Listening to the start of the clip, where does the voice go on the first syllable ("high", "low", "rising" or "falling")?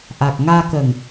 low